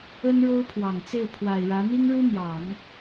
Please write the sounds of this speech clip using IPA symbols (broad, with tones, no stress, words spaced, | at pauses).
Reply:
ə˥nɻo˥ʊ̯pʰwɑ˨˩ŋ t͡se˥˩ɪ̯ pʰwa˨˩ɪ̯ɻä˧˥ n̪i˥ŋɻu˥n̪jɑ˨˩˦ŋ